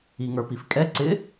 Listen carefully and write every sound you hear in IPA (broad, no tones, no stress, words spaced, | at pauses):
iŋə˞pifkʼɛ ǀɪ